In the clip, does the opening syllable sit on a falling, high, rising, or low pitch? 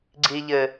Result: high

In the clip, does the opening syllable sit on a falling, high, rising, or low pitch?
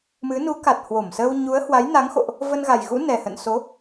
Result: rising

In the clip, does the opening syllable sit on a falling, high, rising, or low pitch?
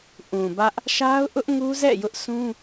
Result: low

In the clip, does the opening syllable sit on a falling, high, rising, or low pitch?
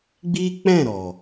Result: high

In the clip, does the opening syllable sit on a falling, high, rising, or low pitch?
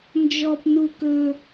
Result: high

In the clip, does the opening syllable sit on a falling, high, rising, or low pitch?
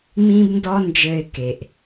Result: high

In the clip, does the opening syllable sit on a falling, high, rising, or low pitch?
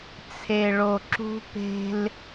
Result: low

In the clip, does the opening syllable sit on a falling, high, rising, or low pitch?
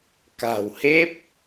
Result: low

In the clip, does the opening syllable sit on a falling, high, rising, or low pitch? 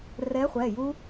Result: rising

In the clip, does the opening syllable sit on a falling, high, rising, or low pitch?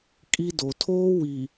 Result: high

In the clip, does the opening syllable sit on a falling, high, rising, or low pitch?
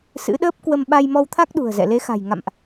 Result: rising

